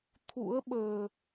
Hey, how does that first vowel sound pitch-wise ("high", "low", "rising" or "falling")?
rising